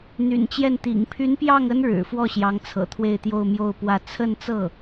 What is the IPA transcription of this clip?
n̪ y̰˨˩ n t͡ɕ j ɛ˥˩ n t̪ ḭ˨˩ ŋ pʰ y˧˥ n p j ɑ˥˩ ŋ ə˥ n ɻ ɻ̩˨˩ f w ɔ˥˩ ɕ j ɑ˧˥ ŋ t͡sʰ ɤ̰˨˩ t̪ʰ w e˥˧ ɪ̯ t̪ j o˥˧ ʊ̯ m j o˥˧ ʊ̯ p w ä˥˧ t͡sʰ ə˥˧ n t͡s ɤ˥˩

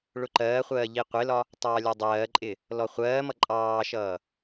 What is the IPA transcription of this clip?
ɭ ʊ ǃ ɜː χʷ ɜː ʎ i qʷ ɪ l ɒ | tˤ ɑː lʲ ɒ dˤ ɜː ǃʼ ɪ | l ɔ χʷ ɜː m ʌ ǃʼ ɑː ʃ ʌː

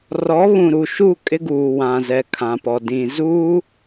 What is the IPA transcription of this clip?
r ɔ˨˦ β ũ˨ ɾ u˨ ʃ u˦˨ kʼ ɪ˦ ɡ uː˨ w ã˨ z ɛ˨ kʰ ã˨ p ɔ˨ d ĩ˨ z uː˦

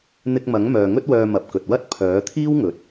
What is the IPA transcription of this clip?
n̪ ɪ˧ k̚ m ɐ˨˥ ŋ m œː˨ ŋ ɵ˥ t̚ w œː˧ m ɐ˨ p̚ k ɵ˨ t̚ w ɐ˥ t̚ pʰ œː˨˥ t̪ʰ iː˥ w ŋ ɵ˨ t̚

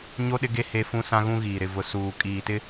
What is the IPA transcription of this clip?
ɲ o˦ ɗ ɪ˦ ɡ e˦ h e˦ f ũ˦ s ã˦ ɣ ũ˦ ɣ iː˨ ɾ ɪ˨ v ʊ˨ s uː˨ kʼ iː˨ t ɪ˦

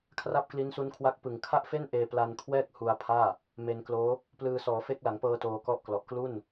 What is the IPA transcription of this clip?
kʰ r a˥˩ p̚ k l i˦˥ n s u˦˥ n kʰ w a˦˥ k̚ p ɯ˨˩ ŋ kʰ a˥˩ ʔ f e˥˩ n ʔ eː˧ p l a˧ n kʰ w ɛː˥˩ k̚ h u˧ a̯ pʰ aː˥˩ | m e˧ n k l oː˦˥ | p l ɯː˧ s ɔː˩˦ f e˦˥ k̚ l a˩˦ ŋ p ɤː˧ t oː˧ k ɔ˦˥ ʔ k l ɔ˨˩ ʔ k l u˥˩ n

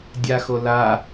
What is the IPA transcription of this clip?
dʲ a x o l a

